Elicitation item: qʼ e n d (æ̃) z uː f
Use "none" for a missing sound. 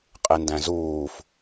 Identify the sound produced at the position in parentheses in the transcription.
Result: æ̃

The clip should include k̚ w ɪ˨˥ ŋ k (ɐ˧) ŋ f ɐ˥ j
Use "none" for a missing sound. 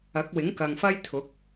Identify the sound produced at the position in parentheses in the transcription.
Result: ɐ˨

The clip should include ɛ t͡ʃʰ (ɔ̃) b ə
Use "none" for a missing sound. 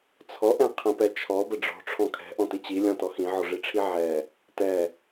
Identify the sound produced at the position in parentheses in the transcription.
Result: ɔ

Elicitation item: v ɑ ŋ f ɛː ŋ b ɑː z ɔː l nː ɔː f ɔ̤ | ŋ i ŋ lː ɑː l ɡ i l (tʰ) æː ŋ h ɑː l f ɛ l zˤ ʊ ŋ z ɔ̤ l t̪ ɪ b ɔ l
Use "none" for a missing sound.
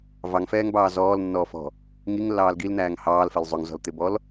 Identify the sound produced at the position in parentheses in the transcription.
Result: n̪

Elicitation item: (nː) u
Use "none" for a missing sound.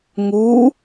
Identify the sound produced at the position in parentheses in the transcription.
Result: ŋ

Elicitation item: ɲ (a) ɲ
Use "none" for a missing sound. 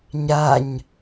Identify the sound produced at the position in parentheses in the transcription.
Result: a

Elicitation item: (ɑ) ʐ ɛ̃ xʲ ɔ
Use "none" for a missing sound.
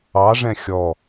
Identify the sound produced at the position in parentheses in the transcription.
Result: ɑ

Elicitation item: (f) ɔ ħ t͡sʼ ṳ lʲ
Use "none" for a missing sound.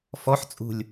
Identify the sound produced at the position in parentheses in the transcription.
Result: f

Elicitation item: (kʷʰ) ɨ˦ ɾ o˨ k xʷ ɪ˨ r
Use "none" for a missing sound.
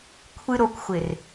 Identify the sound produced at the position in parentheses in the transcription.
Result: kʷʰ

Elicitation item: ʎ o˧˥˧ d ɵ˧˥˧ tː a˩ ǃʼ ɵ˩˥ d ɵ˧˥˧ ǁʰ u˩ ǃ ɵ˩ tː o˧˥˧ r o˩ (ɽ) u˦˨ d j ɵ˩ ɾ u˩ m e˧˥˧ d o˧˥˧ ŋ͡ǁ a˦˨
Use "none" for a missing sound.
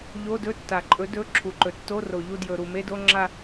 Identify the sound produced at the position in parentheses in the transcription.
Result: ʎ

